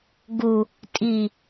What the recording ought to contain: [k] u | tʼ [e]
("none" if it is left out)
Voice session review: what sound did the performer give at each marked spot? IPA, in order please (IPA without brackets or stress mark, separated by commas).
ɡ, i